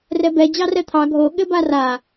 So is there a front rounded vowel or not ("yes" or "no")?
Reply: no